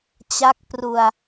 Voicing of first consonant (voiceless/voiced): voiceless